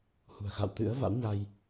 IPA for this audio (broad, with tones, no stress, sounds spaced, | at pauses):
h ṳ˨˩ ə̯ x a̰˧˨ w t̪ ɨ̰˧˥ ə̯ v a̰˧˥ w ɲ a˧ j